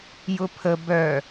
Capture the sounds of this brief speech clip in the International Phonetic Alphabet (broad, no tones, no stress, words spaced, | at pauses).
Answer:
jʊpʰə bœ